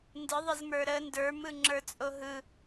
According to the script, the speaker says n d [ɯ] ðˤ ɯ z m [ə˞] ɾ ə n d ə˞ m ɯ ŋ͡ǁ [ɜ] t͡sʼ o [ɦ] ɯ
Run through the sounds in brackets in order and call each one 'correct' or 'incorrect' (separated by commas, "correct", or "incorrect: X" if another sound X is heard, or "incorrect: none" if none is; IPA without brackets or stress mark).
correct, correct, incorrect: ə˞, correct